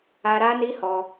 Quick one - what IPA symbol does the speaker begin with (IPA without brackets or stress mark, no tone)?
a